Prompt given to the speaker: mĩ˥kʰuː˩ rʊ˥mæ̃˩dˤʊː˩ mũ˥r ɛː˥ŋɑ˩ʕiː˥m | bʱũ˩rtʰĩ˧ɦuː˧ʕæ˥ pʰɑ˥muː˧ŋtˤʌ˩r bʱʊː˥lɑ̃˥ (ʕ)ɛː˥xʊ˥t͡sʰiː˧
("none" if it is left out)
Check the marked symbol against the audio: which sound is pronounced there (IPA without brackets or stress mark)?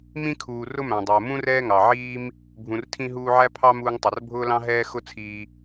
ɦ